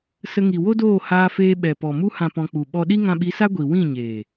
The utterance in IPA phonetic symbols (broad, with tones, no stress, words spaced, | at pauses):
sə˧ŋi˨ wo˦doː˦˨ haː˧feː˧ ɓɛ˨pɔ˨ mu˧hã˨ pɔ̃˧k͡pu˨ ɓɔ˧ɗi˦ ŋã˧ɓi˨˦sa˦ ɡʷi˨ wĩ˦˨ɲeː˨